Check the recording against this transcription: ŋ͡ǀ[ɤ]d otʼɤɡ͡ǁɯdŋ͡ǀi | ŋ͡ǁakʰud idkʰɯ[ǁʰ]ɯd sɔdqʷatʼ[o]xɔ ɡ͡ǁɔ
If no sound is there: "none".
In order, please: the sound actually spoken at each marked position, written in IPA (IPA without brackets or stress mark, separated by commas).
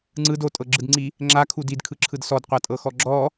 ɯ, ǁʰ, ɤ